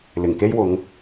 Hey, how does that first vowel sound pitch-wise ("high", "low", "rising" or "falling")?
low